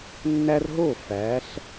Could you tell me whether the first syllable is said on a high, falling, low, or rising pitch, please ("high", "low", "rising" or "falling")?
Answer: high